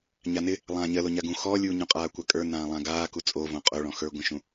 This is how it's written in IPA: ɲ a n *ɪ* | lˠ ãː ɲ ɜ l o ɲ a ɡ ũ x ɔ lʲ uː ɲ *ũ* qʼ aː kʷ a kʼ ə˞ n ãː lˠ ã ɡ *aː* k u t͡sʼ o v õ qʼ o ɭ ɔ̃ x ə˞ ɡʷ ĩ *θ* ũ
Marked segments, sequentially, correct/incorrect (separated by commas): correct, correct, correct, incorrect